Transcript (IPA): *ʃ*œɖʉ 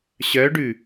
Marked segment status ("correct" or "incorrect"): incorrect